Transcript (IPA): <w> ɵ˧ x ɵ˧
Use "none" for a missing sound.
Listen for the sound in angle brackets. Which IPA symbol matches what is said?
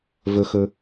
v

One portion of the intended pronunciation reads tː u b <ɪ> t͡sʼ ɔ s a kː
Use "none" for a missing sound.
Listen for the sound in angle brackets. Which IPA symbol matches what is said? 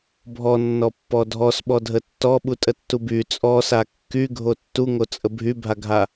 y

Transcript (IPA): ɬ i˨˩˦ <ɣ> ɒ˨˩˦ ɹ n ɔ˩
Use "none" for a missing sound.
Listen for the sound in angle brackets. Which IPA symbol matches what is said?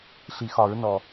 x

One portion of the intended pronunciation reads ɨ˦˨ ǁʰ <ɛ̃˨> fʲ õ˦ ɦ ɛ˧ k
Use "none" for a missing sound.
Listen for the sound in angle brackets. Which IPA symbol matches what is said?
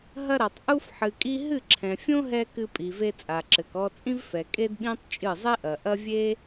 ɛ̃˨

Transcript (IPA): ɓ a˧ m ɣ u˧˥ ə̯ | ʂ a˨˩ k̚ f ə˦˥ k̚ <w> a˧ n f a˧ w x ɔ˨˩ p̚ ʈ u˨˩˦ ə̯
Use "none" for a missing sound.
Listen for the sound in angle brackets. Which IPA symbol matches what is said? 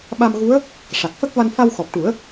v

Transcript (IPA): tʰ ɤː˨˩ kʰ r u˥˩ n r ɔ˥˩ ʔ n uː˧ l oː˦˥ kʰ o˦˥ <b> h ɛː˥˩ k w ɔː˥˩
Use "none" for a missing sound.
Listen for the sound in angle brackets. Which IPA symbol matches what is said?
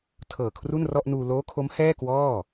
m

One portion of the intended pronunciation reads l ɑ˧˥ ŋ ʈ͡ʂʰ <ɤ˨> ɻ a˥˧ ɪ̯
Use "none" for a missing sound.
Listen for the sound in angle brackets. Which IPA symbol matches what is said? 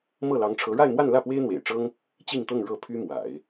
ɤ˧˥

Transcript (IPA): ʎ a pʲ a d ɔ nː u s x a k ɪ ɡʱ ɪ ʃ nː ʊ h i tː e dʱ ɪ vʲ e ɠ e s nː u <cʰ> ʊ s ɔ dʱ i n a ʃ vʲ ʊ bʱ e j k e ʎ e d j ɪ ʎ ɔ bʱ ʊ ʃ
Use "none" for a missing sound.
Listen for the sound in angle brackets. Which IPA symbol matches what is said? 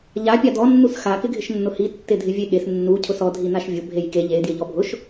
cʰ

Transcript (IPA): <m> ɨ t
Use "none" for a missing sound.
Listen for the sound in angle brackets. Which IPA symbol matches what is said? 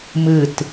m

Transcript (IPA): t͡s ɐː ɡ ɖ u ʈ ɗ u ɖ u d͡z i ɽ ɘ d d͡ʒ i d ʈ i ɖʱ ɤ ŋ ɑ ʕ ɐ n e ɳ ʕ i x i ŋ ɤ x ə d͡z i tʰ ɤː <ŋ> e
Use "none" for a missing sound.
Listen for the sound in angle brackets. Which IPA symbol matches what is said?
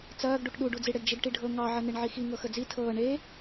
ɳ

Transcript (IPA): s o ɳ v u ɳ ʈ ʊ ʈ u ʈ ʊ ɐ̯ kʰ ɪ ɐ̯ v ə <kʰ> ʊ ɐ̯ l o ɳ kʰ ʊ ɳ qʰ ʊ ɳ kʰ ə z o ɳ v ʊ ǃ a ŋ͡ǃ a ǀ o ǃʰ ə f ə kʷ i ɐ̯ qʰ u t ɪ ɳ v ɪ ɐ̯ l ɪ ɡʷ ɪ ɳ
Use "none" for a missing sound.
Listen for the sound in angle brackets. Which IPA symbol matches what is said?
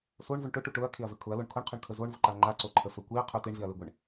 kʰ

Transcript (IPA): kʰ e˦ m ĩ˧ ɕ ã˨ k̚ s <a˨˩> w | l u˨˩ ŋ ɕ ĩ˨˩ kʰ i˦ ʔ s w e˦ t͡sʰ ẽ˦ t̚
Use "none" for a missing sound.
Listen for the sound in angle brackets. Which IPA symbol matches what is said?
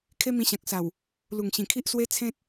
a˨˩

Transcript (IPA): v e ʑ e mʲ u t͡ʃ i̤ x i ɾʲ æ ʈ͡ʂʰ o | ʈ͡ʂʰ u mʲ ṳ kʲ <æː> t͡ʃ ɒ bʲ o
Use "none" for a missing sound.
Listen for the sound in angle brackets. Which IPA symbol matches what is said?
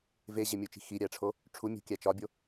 æ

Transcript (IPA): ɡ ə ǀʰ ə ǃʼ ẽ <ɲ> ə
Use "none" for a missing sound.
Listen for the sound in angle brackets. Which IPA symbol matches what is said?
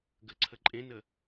n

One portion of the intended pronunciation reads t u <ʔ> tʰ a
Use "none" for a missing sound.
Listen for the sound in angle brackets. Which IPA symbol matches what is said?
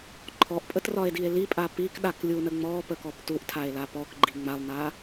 ʔ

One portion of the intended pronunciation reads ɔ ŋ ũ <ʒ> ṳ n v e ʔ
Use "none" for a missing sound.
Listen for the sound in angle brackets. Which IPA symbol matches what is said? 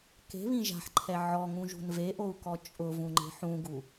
ʒ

